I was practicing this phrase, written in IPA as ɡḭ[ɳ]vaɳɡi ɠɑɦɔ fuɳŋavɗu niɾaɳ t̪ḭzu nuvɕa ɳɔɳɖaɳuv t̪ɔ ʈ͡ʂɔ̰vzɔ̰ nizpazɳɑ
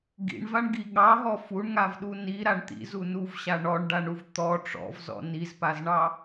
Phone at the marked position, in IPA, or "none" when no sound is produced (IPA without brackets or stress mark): ɳ